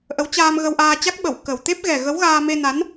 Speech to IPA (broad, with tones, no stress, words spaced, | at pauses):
ʔə˨˦wt͡ɕaː˧m ɣə˧wʔaː˧t͡ɕa˦˥k̚ ɓə˧˩w kə˨˩w t̪e˦˥p̚ɣɛ˨˩ ɣə˨˦wɣaː˧me˧ na˨˦n